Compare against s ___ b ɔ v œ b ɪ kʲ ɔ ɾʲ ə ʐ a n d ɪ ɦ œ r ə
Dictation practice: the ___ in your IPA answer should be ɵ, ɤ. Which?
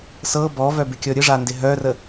ɤ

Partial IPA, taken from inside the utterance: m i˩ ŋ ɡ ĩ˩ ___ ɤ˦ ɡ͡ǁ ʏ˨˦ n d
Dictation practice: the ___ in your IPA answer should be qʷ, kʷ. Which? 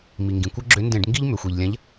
kʷ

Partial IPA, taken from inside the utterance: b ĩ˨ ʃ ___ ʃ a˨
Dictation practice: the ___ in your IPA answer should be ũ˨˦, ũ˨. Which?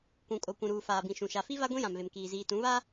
ũ˨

